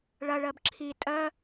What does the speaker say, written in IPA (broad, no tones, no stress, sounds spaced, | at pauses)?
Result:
ɭ ɐ ɭ ɜ b ǁʰ i tʼ ɜ